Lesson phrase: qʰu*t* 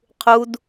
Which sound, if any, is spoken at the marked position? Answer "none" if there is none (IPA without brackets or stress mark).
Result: d